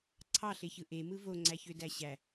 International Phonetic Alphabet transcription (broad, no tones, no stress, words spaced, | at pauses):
ǀʰɑɬeçɯ ʔemɯ voŋ͡ǀæçødæ ɕæ